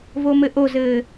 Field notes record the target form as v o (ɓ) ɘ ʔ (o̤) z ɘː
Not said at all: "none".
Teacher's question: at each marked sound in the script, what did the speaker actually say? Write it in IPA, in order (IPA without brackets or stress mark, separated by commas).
m, o